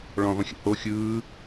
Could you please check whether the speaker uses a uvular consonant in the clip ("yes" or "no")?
yes